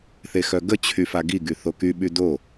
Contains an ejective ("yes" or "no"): no